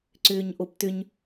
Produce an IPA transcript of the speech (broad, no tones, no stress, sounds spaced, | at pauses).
ǀ ʏː ɲ ʔ o p t ʏ ɲ